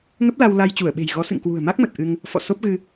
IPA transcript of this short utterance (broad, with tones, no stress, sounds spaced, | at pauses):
ŋ ə˦˥ p̚ l a˧ w l a˧ j t͡ɕ u˧˩ ə̯ ɓ e̤˨˩ j ɣ ɔ˨˦ s ɨ̰˧˨ ŋ k w ṳ˨˩ ə̯ m a˦˥ k̚ m ə˨˩ t̚ ʔ ɨ˧ ŋ | f ɔ̰˧˨ s o˦˥ p̚ ɣ ɨ˧